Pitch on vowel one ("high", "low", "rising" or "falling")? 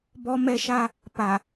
high